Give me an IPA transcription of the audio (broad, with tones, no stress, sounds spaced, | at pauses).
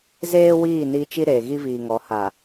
z eː˦ w iː˦˨ n i˦ t͡ʃ i˦ ɾ eː˨ ɣ i˦ v iː˨ ŋ ɔ˨˦ h a˨